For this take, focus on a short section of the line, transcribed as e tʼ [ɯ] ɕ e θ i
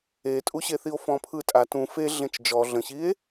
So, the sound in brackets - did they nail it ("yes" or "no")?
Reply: no